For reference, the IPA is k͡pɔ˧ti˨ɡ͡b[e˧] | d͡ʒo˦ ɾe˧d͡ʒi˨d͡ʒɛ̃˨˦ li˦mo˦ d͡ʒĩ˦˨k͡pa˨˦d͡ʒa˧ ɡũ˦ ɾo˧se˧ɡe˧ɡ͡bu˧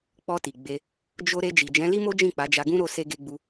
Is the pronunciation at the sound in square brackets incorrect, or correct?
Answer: correct